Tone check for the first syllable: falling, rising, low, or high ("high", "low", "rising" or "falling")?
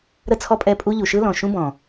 high